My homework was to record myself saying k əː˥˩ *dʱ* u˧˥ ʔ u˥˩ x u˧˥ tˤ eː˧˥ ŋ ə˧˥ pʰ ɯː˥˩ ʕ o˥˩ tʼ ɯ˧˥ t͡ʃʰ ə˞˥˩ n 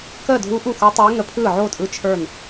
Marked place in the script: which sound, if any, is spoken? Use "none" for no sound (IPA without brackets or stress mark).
dʱ